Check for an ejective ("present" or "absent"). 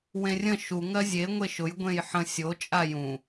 present